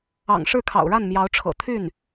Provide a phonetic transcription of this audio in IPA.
ɑ̰˨˩ŋ ʂɻ̩˥˩kʰɑ̰˨˩ʊ̯ɻa˥˩n mjɑ˧˥ʊ̯ʈ͡ʂʰɤ̰˨˩ t̪ʰy˥˩n

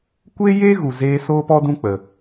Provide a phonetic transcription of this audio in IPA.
kʷeː˦jeː˦ ɣu˨zeː˧ soː˦pɔ˦dũ˦ k͡pə˧

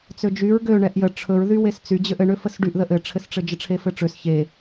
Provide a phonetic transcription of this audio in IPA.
t͡sød͡ʒyɹ ɡø ɳɛʔjə ʈ͡ʂʰɵɹ ðywest͡sy d͡ʑøʔɘ ɳøfəsɖyʔðəʔ ɘʈ͡ʂʰɘsʈ͡ʂɘd͡ʒə ʈ͡ʂʰefɘʈ͡ʂøs çe

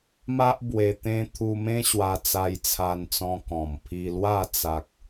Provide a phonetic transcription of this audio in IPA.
ma˦ʔ bwe˧t̪ẽ˦ t̪ʰu˧mẽ˦ ɕwa˧t͡sa˧jt͡sʰa˧nt͡sɔ̃˧ kɔ̃˨˩m pʰi˧lwa˥˧ t͡sa˦k̚

